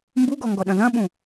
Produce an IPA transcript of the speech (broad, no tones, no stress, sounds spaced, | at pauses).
m b u ɡ ɔ ŋ ɡ ɔ ɗ ɐ̃ ð ɐ̃ ɓ ũ